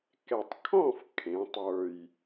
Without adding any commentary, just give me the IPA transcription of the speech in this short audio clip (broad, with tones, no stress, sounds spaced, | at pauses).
k ɛ˨˩ tˤ kʰ ɔ̃˥˨ f kʰ ẽ˩˧ tˤ ə˞˨˩ j